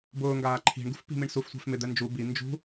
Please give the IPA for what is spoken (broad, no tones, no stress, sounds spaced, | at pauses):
b ʊː ŋ ɡ aː ǃʰ i̤ ɳ ɡ ṳ f p i̤ m i ɳ s u f sʷ ɛ̤ f m ɪ d̪ ɛ n d͡ʒ u b i n d͡ʒ ṳ